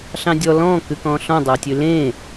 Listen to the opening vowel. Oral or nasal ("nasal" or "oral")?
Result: nasal